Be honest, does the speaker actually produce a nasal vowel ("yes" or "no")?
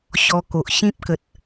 yes